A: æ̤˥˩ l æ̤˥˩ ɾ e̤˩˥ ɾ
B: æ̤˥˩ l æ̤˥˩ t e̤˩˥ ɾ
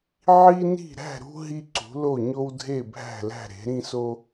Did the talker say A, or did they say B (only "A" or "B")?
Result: A